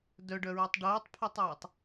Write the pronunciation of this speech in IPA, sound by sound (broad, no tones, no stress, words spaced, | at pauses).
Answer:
dœɖœɹotˤ ɖoːtˤpʰœtˤœːtˤ